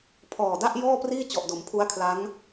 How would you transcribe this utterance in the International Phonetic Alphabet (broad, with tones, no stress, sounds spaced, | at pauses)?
pʰ ɔː˨˩ d a˥˩ ʔ j ɔː˥˩ p r iː˥˩ t͡ɕ ɔ˨˩ ʔ d o˩˦ m pʰ u˦˥ a̯ kʰ l a˦˥ ŋ